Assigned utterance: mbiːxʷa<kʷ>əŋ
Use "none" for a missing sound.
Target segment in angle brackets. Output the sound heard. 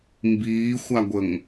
ɡʷ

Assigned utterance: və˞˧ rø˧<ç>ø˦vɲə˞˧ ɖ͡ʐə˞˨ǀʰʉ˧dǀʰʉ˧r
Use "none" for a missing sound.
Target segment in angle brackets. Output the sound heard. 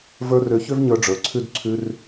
ç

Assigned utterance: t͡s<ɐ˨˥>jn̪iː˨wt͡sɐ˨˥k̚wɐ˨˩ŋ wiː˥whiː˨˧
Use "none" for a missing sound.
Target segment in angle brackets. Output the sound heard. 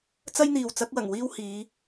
ɐ˥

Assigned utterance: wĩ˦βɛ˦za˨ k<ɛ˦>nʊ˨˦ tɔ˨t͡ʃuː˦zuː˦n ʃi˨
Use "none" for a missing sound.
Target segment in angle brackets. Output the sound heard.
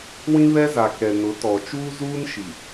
ɛ˨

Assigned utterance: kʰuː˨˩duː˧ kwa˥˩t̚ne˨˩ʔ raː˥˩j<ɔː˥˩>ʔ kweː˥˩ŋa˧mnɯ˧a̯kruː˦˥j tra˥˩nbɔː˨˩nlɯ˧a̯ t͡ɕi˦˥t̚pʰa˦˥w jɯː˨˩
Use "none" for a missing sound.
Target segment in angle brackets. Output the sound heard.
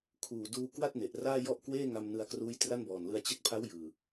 ɔ˥˩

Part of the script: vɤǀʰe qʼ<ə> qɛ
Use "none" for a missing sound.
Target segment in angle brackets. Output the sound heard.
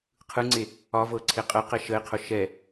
ə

